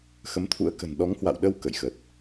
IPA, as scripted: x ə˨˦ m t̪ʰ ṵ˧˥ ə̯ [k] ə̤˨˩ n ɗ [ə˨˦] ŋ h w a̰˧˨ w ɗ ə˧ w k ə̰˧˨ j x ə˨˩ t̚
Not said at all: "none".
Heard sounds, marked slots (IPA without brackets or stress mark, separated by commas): k, ɔ˨˦